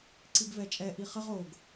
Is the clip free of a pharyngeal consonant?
yes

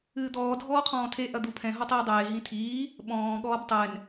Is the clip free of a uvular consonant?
no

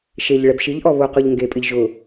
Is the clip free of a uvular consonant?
no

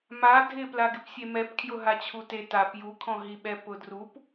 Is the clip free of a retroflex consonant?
yes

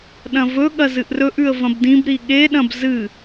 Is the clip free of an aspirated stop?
yes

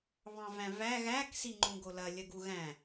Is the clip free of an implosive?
yes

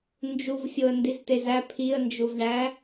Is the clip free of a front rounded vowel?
yes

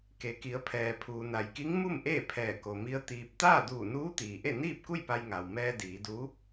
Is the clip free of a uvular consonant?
yes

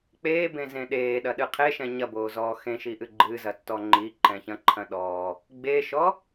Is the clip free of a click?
no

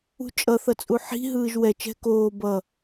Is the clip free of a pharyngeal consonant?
no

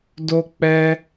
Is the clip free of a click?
yes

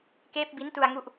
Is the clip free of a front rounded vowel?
yes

